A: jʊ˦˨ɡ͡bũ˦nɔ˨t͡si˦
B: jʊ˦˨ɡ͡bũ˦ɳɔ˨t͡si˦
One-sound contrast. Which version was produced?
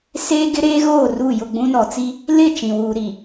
A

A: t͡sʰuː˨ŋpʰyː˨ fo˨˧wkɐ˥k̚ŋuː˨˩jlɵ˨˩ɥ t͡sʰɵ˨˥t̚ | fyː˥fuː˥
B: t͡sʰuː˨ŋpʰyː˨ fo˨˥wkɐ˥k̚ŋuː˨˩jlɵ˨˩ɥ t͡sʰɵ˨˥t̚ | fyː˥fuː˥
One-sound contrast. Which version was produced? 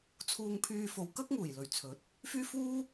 A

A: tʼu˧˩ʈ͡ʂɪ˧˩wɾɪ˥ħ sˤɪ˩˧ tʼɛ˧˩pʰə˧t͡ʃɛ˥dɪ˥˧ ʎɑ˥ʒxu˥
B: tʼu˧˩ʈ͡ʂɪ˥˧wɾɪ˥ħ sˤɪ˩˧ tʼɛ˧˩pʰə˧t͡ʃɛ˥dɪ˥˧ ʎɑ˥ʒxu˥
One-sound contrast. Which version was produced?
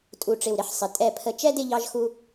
A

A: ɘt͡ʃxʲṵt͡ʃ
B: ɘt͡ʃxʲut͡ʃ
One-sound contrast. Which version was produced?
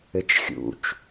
A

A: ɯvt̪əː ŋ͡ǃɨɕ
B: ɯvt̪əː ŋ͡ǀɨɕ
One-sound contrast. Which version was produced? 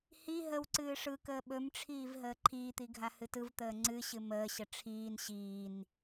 B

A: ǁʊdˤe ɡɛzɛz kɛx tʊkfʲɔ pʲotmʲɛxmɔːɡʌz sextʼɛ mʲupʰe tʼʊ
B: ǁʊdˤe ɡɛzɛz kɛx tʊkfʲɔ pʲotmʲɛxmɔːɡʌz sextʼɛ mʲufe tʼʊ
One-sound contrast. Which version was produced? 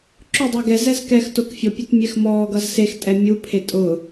A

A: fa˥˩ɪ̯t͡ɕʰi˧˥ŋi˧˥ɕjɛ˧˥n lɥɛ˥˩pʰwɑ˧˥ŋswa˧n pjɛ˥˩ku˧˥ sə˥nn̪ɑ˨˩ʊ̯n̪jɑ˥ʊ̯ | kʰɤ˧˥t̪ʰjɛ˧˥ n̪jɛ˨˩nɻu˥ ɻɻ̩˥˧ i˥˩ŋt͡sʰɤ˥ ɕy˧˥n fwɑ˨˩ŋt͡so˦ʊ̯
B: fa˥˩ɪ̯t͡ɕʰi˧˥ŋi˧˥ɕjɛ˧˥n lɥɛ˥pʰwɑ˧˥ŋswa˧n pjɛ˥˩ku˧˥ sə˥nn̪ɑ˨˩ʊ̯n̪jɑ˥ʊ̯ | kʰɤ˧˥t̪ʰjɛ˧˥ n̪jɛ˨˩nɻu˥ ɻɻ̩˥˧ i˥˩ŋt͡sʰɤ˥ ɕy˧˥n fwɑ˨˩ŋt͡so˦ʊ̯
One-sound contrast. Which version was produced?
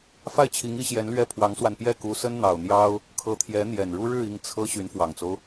A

